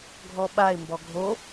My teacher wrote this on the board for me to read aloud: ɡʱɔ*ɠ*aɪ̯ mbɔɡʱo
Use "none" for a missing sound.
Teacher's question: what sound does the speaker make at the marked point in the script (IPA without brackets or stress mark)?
ɓ